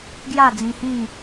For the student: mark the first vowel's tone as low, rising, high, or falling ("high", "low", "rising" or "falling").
falling